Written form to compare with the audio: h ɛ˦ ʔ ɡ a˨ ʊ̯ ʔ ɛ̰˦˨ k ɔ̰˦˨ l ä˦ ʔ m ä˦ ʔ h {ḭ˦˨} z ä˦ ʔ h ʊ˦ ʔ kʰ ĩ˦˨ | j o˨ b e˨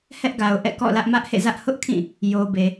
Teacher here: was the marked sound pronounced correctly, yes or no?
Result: no